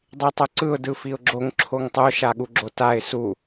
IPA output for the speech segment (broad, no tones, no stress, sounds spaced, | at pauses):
dˤ i tˤ o ǀ ɯ ʊ̯ d ɯ f i ʊ̯ ɡ͡ǁ o ŋ ǁʰ o ŋ tˤ o ʃ a ɠ u ɡ͡ǁ o t a ɪ̯ s u